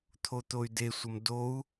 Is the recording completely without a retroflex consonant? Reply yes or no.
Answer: yes